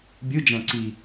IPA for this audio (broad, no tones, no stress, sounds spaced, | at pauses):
bʲ ɯ d͡ʒ æ̃ ǀ i